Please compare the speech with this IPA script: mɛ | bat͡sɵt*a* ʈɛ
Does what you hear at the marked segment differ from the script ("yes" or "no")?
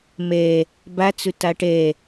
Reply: no